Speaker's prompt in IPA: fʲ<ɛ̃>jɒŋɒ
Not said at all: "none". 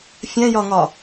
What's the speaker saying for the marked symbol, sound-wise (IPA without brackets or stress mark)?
ɛ̃